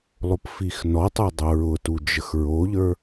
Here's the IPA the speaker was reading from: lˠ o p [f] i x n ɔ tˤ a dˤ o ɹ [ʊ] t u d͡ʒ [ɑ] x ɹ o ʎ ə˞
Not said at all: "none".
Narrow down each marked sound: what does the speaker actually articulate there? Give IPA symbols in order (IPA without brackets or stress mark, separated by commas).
f, ʊ, ə